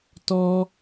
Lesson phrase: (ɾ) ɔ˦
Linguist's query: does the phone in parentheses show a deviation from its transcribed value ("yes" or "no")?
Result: yes